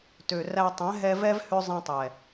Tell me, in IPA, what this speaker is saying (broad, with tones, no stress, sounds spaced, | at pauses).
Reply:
t ø˨ r æ˧ tˤ ɛ̃˨˦ ɦ ɛ˧ v ɛ˦ v h ø˦ zˤ ɛ̃˧ tˤ ɛ˨